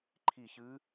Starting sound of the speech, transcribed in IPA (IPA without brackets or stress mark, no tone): ǃʰ